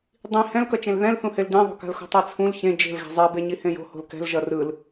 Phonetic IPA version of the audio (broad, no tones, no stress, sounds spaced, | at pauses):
dˤ ĩ h ɛ̃ l k ʌ t͡ʃ ẽ l ð ɛ̃ l θ ũ h e l d ẽ ðˤ o̤ k a̤ l x o̤ tˤ ɛ t͡sʰ ũ l ç ẽ d͡ʒ e̤ l ɣ ɛ̤ zˤ ɛ b e ɲ i h ẽ j o̤ h o̤ l k ɛ̤ l ʒ ʌ r ɯ l